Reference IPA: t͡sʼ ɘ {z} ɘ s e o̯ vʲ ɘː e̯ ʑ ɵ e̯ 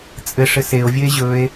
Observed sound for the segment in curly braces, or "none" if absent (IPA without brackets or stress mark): ʂ